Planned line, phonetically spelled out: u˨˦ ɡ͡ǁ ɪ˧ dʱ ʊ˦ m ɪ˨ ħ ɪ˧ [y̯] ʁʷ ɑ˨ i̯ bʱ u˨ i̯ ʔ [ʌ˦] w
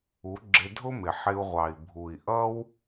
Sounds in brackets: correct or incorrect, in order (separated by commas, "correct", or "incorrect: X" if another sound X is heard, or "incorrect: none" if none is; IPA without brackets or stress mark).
incorrect: u̯, correct